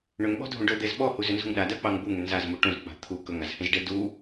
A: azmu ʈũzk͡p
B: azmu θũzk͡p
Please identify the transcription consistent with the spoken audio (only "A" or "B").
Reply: A